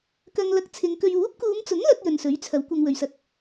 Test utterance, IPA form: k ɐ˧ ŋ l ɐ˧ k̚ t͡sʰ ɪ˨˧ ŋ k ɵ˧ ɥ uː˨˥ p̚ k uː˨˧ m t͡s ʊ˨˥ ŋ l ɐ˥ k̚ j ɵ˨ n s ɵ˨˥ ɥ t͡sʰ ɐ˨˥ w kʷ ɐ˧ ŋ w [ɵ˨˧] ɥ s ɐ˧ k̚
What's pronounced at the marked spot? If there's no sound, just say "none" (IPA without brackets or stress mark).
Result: ɵ˨